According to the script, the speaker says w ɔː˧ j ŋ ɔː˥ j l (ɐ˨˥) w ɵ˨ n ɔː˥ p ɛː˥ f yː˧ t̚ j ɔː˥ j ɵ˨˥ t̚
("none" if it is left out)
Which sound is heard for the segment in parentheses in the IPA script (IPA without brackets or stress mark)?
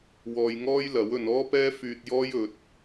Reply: ɐ˨˥